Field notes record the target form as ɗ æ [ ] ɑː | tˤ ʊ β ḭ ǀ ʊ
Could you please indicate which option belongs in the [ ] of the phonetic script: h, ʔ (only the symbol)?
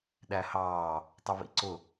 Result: h